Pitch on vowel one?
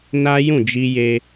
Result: high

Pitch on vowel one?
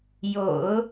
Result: low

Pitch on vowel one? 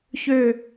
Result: falling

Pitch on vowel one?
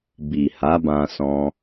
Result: low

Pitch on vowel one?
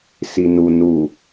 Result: low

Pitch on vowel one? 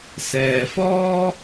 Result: low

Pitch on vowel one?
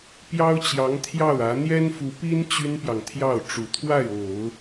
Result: high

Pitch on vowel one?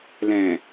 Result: low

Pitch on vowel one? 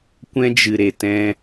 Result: high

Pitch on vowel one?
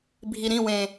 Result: low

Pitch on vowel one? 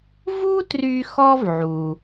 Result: high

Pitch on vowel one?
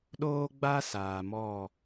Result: high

